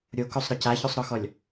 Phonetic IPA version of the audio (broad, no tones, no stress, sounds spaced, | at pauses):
ɾʲ o k o sˤ ɾ ɒ c a ç o sˤ ɾ ɔ x ɔ lʲ